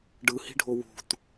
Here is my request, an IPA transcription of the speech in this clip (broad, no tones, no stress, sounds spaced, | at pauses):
ɖ ɯ h i̤ ɖʱ o w ṳ t